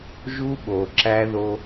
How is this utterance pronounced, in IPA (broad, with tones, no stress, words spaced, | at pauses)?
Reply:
ʒu˦ɓo˨ǁæ˦ðo˦